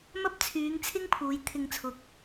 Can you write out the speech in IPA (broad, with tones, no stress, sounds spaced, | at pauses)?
m ɐ˥ p̚ t͡sʰ yː˨˧ ŋ t͡sʰ ɪ˥ ŋ pʰ uː˨˧ j t̪ʰ ɪ˧ ŋ t͡sʰ ʊ˨˥ k̚